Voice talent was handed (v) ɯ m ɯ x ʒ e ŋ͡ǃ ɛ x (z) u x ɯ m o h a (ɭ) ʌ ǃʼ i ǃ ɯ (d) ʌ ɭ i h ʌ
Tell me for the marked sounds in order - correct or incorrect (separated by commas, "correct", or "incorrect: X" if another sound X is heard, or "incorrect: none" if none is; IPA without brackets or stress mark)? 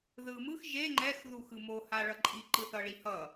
incorrect: ð, incorrect: ð, correct, incorrect: θ